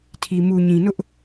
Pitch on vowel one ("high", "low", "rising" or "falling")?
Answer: low